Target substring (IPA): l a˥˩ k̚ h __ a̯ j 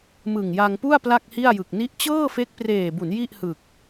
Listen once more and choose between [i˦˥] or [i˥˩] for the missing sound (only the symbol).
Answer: i˥˩